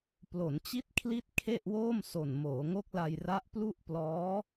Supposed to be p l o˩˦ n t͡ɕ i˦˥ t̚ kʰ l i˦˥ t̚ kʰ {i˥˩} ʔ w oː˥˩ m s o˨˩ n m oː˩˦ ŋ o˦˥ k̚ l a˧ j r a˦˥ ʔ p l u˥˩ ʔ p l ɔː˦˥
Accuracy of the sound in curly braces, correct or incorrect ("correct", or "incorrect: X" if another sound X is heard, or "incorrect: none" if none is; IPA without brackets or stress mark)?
incorrect: e˥˩